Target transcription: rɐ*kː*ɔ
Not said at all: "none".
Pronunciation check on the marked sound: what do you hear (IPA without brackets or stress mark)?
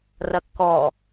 kː